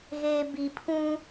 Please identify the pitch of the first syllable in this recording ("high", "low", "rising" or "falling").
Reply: low